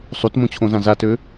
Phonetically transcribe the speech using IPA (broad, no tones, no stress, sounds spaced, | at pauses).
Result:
sˤ u t m õ t͡ɕʰ õ z ã z a t ø